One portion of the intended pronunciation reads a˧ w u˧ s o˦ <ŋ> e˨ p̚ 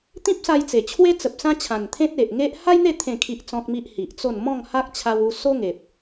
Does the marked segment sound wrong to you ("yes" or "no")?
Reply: no